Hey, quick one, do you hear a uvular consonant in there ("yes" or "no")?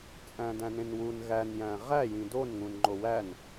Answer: yes